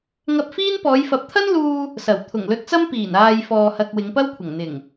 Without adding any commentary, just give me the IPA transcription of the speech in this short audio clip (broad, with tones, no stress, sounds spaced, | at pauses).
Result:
ŋ ɐ˧ p̚ f iː˥ n p ɔː˨˧ j f ɐ˨˥ p̚ t̪ʰ ɐ˥ n l uː˧ | s ɐ˨˩ w t̪ʰ ʊ˨˩ ŋ l ɵ˧ t̚ t͡s ɐ˥ m p iː˨˩ n aː˨ j f ɔː˨ h ɐ˨ k̚ w ɪ˨˧ ŋ p ɐ˥ w kʷʰ ɐ˨˩ ŋ n̪ ɪ˨˩ ŋ